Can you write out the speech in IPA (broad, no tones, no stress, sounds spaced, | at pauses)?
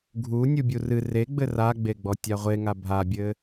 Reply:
ɡʱ u nʲ u bʲ u r ɨ r e ɡ͡b ɘ r a ɡ͡b e ɡ͡b ɔ tʲ a ʁʷ e ŋ a bʱ a bʲ ɘ